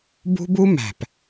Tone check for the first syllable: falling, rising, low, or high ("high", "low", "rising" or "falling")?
high